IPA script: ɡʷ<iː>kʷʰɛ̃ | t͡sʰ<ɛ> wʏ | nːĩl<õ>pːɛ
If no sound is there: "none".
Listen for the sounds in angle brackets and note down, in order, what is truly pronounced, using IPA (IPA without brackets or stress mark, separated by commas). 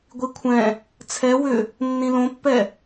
i, ɛ, õ